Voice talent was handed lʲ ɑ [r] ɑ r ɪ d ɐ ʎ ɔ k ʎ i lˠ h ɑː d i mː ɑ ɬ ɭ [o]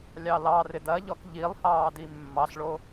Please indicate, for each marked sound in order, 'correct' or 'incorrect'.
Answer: incorrect: l, correct

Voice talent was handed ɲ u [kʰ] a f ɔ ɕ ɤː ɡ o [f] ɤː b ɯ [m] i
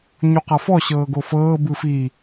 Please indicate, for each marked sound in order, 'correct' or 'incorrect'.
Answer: incorrect: q, correct, incorrect: f

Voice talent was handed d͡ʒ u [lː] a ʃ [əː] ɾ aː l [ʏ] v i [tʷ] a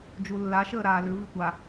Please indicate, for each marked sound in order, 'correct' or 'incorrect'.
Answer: correct, correct, correct, correct

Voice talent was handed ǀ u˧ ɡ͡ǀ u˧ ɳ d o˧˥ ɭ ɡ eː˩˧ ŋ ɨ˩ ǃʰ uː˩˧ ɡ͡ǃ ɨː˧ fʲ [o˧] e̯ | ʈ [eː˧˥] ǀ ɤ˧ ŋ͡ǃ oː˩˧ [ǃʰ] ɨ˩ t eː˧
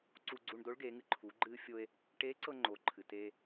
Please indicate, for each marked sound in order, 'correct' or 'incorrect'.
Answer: correct, correct, correct

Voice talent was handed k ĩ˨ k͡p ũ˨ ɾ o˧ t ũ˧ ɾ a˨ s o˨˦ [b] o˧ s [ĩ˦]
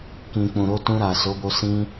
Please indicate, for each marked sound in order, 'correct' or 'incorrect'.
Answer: correct, correct

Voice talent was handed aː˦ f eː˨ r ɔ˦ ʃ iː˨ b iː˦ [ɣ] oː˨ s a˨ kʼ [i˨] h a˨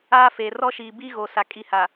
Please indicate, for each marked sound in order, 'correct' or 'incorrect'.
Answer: correct, correct

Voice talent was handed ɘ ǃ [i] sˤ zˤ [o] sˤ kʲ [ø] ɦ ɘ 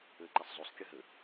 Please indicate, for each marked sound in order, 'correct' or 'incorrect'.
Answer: correct, correct, incorrect: ɘ

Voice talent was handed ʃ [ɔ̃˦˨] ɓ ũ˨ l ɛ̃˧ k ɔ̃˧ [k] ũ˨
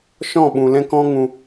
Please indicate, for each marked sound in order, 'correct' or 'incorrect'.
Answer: correct, incorrect: ŋ

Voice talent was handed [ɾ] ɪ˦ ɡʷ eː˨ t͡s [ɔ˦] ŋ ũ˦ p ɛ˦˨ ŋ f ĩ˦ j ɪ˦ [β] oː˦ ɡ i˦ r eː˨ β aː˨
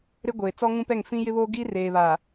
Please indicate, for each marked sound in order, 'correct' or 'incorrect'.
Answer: correct, correct, correct

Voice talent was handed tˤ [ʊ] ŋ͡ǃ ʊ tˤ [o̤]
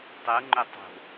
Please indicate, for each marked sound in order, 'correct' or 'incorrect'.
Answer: incorrect: u, correct

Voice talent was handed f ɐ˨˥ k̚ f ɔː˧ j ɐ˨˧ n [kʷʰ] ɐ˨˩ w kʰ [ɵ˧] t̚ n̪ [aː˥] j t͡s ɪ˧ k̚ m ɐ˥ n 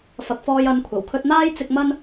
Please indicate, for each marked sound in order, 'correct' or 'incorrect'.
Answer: correct, correct, correct

